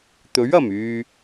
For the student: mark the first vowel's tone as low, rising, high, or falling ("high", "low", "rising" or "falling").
rising